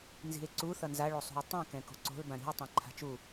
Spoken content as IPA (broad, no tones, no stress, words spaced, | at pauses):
nzi̤e̯ǀu θʌnza ɭosˤṳe̯tˤĩ kɛ̃ko̤ǀo̤l bãɾi̤o̯ tˤãǃʰa̤t͡ʃu